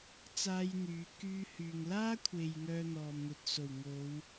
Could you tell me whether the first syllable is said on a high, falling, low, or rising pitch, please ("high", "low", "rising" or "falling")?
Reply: high